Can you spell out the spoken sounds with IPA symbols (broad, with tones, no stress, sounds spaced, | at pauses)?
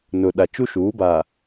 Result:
n ʊ˨ ɗ a˨ t͡ʃ u˦ ʃ uː˨˦ b a˨